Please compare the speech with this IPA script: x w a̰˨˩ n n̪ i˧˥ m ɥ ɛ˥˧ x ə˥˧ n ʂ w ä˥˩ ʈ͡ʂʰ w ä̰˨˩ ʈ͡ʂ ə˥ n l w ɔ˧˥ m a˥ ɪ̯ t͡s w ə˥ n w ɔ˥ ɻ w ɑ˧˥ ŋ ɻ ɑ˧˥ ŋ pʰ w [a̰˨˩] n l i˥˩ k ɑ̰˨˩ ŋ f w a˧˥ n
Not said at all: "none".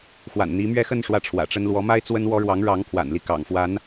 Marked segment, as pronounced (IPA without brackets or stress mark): a̰˨˩